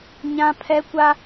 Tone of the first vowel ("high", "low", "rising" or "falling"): high